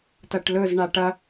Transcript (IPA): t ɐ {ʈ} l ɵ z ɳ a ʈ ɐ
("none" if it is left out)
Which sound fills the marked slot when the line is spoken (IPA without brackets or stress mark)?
ʈ